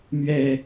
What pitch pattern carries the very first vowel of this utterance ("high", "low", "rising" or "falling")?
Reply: low